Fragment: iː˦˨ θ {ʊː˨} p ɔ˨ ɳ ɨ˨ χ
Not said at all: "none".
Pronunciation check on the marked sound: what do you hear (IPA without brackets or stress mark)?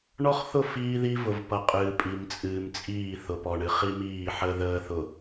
ʊ˨